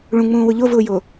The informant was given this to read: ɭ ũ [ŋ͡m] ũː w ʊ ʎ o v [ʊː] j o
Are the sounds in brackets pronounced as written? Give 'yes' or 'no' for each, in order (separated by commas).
yes, yes